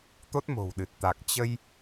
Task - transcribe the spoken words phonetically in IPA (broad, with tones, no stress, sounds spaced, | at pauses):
t̪ o˦˥ t̚ m o̤˨˩ w ɗ ɨ˨˩ t̚ t̪ a˨˩ k̚ t͡ɕ ə˧ j